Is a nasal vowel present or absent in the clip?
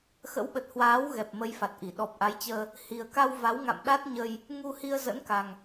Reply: absent